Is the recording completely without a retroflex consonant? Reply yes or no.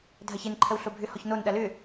yes